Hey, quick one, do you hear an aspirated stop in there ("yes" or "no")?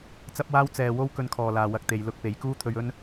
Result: yes